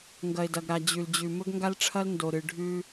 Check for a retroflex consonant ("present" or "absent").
present